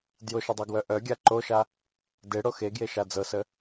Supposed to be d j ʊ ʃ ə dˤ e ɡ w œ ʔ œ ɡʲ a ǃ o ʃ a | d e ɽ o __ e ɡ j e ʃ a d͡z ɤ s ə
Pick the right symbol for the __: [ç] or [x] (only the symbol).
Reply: x